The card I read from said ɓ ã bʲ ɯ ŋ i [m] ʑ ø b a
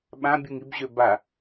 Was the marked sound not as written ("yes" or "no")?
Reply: yes